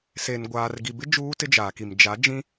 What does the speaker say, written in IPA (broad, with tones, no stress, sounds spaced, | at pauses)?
s e˨ n ɡʷ aː˨ r ɡ i˨ b ɪ˦ d͡ʒ uː˦ t ɪ˦ d͡ʒ aː˨ k i˨ m d͡ʒ a˨˦ d͡ʒ ĩ˦